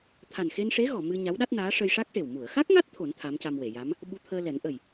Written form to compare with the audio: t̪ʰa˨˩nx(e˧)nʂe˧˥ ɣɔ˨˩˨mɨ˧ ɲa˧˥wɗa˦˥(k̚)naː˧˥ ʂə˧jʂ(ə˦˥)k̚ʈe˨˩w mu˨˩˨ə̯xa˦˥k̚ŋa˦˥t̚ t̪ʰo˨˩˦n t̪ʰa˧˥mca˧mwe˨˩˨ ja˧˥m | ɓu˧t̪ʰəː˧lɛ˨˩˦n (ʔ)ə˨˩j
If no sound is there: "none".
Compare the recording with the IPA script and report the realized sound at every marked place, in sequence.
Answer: e˧, t̚, a˦˥, ʔ

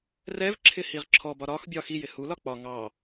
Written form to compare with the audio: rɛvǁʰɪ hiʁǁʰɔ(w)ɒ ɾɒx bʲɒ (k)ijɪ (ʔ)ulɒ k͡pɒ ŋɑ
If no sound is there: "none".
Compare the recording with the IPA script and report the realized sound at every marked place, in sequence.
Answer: b, x, h

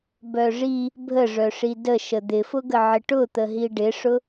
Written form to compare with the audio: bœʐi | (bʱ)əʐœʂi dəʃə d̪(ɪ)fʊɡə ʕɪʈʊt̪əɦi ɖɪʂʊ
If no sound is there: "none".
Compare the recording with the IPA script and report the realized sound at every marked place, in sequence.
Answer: bʱ, ɪ

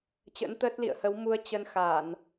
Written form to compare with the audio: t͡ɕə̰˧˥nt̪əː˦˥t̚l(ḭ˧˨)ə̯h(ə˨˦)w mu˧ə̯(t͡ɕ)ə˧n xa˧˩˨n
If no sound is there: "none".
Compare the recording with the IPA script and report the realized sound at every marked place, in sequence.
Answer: ḭ˧˨, ə˨˦, t͡ɕ

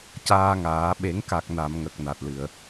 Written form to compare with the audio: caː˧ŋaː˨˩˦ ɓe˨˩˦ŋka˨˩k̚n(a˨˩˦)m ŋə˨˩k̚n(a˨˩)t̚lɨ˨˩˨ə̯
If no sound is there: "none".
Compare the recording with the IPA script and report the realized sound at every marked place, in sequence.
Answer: a˨˩˨, a˨˩

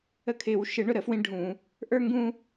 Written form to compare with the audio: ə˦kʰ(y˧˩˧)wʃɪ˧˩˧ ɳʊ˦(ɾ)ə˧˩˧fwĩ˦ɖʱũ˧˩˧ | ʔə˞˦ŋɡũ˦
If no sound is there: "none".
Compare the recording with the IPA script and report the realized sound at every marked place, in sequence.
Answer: ɪ˧˩˧, ɾ

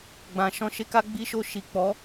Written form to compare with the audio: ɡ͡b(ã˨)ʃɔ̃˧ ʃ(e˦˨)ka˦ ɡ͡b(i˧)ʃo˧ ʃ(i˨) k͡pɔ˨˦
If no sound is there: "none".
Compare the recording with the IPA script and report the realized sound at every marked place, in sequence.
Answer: ã˨, e˦, i˧, i˨

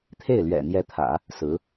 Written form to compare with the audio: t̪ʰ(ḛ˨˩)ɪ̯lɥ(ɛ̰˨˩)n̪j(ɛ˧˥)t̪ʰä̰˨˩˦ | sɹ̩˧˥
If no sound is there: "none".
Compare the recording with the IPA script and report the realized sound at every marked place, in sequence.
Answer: e˥˩, ɛ̰˨˩, ɛ˧˥

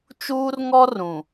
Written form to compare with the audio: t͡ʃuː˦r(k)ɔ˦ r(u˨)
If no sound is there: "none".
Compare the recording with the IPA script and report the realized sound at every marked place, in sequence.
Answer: ŋ, ũ˨

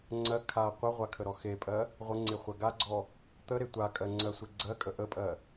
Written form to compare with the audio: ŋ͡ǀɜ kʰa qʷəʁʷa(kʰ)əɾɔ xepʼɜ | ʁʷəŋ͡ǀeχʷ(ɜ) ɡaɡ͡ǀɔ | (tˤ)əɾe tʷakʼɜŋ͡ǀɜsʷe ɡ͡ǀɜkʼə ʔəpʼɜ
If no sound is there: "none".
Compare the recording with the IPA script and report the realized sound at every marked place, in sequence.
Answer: kʰ, ɜ, t̪

